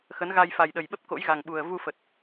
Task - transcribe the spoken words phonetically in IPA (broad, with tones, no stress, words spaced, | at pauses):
xə˨˦nɣa˧j fa˨˩jɗə˨˩jɓə˦˥p̚ ko̰˧˥jɣa˨˩ŋɓu˨˩ə̯ vu˧fə˨˩t̚